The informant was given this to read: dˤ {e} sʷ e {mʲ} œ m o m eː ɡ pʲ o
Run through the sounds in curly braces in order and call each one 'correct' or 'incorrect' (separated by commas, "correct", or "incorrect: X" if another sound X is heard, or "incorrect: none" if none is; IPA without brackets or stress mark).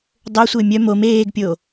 incorrect: ø, correct